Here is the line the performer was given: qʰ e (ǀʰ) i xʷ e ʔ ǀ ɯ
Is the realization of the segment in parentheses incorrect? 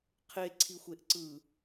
no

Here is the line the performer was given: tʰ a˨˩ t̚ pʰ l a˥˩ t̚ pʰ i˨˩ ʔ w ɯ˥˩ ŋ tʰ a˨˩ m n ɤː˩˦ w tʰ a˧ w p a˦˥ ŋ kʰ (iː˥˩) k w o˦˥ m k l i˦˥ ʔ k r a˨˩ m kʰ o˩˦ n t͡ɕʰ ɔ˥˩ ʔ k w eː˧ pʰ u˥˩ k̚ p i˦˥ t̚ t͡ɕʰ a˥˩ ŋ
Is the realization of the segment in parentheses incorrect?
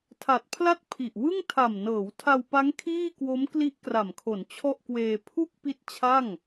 no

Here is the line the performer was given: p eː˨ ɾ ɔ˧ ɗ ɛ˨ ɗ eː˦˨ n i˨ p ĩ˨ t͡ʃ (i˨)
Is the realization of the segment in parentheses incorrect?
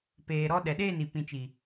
no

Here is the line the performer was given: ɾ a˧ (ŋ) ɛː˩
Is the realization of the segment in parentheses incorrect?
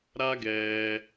yes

